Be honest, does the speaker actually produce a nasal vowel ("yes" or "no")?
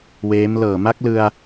no